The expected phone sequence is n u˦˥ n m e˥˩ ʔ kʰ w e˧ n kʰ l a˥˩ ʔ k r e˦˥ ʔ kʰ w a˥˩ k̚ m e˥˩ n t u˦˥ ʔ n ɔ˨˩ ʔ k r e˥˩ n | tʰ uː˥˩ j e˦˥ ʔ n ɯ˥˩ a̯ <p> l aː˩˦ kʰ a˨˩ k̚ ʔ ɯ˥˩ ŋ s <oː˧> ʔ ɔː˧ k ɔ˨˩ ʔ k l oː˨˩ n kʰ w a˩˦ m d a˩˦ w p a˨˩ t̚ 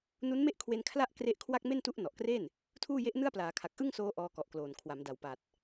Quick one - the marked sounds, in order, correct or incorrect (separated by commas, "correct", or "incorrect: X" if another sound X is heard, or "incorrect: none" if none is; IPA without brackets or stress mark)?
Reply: correct, correct